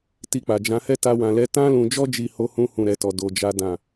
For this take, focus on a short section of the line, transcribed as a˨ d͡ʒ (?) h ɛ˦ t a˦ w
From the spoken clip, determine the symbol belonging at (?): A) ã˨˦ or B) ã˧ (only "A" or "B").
A